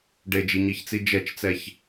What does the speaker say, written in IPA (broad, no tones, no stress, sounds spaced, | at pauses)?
ɖ e d͡ʒ i ɲ i ç t͡s i d͡ʒ ɛ t͡ʃ t͡s ɛ ç